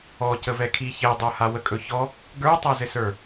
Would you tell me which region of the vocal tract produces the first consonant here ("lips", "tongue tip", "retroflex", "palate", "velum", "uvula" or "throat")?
palate